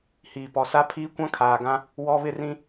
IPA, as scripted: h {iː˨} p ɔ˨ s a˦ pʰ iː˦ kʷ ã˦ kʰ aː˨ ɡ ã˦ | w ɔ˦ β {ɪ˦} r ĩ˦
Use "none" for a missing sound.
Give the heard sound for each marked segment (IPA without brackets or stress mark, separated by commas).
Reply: iː˨, ɪ˦